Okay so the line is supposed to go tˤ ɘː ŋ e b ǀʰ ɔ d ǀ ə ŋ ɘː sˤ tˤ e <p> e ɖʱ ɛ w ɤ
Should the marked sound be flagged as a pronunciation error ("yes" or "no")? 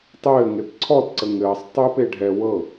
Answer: no